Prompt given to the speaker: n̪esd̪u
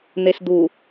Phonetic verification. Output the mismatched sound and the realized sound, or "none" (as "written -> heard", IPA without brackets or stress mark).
none